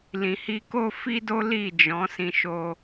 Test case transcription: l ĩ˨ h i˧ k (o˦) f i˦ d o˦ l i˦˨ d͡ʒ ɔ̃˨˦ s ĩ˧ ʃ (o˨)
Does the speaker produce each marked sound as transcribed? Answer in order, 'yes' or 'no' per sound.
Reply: yes, no

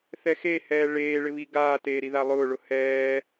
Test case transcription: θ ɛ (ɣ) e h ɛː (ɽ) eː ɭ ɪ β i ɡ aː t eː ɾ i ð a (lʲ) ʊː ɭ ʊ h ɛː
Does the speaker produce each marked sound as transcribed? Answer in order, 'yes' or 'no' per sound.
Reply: no, no, no

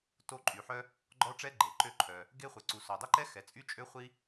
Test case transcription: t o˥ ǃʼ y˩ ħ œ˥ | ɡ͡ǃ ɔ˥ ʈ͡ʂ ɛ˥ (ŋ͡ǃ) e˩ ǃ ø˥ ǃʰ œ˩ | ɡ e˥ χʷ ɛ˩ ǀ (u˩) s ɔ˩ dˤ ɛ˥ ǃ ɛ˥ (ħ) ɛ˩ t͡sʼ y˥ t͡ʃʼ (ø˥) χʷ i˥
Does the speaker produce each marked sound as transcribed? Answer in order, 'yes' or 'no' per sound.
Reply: no, yes, no, yes

